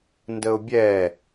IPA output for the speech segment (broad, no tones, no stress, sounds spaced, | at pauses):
n d ə ʊ̯ bʲ ɛː